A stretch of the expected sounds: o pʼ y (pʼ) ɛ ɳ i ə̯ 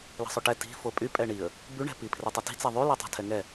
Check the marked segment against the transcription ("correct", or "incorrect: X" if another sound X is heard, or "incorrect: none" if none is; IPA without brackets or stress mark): correct